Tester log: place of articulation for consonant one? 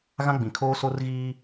velar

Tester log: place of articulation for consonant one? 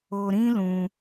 alveolar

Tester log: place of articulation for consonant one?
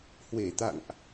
glottal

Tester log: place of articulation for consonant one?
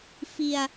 labial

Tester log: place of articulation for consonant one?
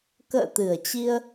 velar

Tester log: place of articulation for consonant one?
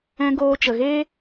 velar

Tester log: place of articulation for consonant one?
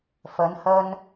labial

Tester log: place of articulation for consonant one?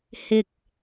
glottal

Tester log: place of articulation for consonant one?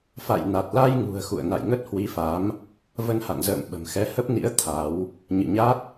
labial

